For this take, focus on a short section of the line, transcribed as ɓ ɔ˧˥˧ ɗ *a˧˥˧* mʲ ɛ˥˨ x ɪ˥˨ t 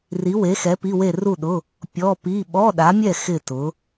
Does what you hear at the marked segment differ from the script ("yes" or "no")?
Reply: yes